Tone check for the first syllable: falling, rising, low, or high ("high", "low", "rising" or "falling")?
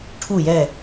falling